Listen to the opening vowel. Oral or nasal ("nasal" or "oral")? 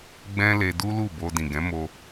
nasal